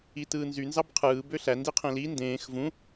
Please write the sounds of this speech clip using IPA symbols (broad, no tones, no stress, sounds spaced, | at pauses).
i t ɯː n z y n z ɑ b qʰ ɯː b ø ɬ æ n d i qʰ ẽ l i n d ẽː x v ũ